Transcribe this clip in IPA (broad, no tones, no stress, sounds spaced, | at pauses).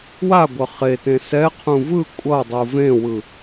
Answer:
w a ɡʷ ʌ χ e t ẽ s ɛ qʰ ũ v ɯ kʷʼ ʌ dˤ u v ẽ w ɯ